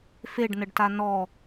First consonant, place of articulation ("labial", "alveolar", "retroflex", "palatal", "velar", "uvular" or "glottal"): labial